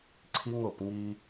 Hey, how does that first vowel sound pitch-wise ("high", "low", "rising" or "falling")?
high